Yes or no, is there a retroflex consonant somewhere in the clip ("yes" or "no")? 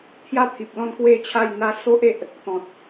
no